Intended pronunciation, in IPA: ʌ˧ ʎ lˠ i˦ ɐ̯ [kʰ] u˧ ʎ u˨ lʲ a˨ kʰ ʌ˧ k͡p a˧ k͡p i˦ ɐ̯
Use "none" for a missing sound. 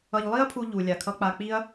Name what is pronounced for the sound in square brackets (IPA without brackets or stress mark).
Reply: pʰ